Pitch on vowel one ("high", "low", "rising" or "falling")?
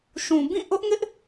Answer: low